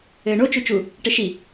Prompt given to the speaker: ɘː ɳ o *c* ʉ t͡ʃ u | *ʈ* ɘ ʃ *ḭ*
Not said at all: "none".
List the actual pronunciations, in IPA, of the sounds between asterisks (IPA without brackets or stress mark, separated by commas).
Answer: t͡ʃ, ʈ, i